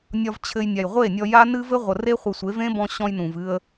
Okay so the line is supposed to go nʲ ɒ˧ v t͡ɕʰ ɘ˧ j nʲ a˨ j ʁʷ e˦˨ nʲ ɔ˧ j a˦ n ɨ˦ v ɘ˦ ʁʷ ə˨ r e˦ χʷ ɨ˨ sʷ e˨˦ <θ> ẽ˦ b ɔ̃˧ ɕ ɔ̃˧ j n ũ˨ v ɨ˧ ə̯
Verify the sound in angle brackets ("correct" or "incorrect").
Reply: incorrect